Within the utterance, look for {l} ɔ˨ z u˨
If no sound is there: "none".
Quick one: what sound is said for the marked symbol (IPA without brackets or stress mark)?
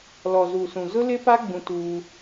l